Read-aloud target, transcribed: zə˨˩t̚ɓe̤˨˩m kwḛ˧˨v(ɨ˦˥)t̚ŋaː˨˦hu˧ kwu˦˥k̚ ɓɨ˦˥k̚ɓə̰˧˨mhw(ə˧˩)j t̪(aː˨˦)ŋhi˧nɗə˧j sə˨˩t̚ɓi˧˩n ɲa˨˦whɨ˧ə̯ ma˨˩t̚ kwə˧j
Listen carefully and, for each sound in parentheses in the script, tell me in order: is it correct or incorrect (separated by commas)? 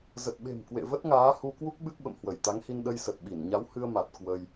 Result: incorrect, correct, incorrect